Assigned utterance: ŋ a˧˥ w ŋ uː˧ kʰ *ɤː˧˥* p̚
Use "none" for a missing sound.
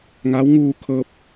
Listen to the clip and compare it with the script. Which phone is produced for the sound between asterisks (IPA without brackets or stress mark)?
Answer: ɤː˧